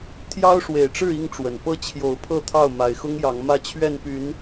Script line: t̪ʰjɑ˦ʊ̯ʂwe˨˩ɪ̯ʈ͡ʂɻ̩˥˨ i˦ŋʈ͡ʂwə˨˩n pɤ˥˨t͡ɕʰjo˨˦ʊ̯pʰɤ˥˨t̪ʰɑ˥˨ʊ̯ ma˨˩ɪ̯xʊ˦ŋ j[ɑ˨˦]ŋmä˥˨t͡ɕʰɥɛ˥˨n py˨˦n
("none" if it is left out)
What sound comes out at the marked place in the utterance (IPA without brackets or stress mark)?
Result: ɑ˨˦